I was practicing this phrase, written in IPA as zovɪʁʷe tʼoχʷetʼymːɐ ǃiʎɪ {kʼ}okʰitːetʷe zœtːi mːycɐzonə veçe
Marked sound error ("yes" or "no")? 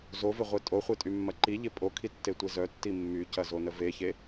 yes